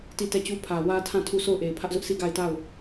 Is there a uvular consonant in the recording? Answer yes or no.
no